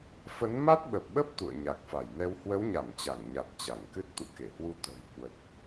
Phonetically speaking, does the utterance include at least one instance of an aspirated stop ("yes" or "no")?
no